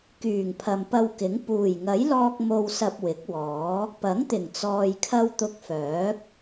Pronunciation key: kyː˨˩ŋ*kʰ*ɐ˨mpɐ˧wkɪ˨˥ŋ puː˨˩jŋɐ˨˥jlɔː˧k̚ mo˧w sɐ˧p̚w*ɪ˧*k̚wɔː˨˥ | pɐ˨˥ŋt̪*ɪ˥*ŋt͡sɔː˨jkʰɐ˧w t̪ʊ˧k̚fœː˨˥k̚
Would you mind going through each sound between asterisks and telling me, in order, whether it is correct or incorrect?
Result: incorrect, incorrect, incorrect

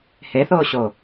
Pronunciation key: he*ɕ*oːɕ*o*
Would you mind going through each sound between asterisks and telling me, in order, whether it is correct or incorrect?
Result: incorrect, correct

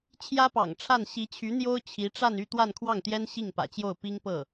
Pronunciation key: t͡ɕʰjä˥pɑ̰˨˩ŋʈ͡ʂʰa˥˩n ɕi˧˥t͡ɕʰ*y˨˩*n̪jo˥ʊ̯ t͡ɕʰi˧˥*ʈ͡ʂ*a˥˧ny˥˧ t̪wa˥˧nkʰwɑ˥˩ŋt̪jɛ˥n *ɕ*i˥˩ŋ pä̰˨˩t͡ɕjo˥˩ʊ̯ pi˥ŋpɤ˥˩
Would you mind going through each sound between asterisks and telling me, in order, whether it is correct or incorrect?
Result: incorrect, correct, correct

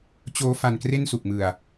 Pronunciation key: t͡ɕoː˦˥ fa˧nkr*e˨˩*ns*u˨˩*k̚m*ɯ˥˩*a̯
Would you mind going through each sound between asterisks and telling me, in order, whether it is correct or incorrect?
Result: incorrect, correct, incorrect

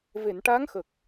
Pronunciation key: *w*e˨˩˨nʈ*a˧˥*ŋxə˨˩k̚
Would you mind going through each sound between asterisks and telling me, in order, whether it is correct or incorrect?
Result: incorrect, correct

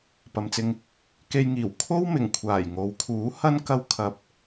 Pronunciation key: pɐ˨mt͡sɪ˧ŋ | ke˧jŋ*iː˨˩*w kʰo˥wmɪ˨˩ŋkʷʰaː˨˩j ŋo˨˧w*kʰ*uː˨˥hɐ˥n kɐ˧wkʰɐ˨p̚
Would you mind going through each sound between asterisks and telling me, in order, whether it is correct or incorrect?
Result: correct, correct

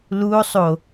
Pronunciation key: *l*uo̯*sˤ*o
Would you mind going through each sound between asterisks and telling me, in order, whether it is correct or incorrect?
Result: correct, correct

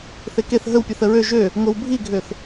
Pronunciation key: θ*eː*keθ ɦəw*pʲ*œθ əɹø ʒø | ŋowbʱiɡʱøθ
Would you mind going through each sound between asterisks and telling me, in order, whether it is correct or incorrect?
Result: incorrect, correct

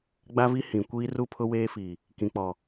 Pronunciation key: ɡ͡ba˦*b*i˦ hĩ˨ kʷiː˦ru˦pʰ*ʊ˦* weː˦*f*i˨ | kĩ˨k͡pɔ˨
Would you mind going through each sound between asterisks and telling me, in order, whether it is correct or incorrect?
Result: incorrect, correct, correct

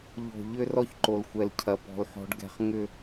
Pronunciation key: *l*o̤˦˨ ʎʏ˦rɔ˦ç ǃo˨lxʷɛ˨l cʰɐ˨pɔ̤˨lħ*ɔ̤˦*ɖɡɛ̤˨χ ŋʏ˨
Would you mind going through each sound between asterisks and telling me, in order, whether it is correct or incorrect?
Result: incorrect, incorrect

